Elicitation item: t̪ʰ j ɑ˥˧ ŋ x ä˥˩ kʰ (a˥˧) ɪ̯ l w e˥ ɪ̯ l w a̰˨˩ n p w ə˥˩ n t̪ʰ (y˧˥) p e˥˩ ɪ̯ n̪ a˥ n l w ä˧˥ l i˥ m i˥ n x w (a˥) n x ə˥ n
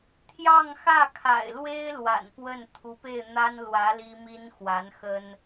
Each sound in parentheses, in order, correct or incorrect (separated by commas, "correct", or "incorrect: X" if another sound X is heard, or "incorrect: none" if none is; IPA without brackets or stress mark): incorrect: a̰˨˩, incorrect: u˧˥, incorrect: a˧˥